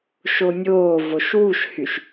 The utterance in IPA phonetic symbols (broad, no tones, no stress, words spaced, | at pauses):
ʃonʲoːvoʃ wuʃhyʃ